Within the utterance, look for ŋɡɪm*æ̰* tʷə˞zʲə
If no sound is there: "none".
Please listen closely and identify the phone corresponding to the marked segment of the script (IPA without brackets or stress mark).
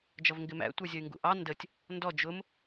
æ̰